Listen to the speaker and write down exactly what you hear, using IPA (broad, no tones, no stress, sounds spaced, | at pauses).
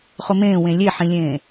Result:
χ ʊ m ẽː w ẽ lʲ e ħ ĩ lʲ ẽː